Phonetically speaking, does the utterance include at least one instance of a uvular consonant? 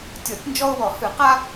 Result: yes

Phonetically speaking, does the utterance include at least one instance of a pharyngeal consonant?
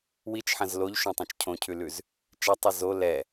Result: yes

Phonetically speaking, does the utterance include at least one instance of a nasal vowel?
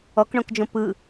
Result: yes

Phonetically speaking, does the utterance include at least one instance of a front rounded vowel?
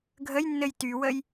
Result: yes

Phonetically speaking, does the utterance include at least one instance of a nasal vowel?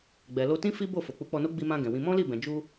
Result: yes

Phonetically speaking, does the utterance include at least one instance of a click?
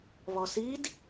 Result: no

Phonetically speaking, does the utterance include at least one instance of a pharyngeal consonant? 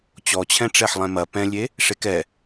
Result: yes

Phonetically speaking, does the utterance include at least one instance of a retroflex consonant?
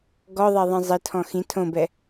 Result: no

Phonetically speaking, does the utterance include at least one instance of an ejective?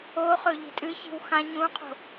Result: yes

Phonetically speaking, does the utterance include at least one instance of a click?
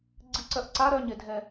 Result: yes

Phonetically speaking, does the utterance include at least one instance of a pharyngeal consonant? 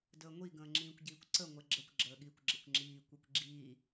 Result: no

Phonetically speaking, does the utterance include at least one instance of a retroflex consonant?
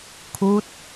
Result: no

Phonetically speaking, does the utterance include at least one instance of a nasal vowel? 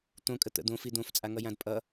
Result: yes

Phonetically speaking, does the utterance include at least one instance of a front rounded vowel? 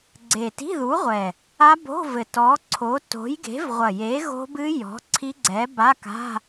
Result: no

